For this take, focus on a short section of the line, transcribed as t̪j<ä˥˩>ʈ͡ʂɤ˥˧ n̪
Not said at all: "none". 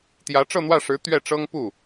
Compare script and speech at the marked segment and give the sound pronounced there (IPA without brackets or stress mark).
ä˧˥